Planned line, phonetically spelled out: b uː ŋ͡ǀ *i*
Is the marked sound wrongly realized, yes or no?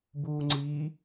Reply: yes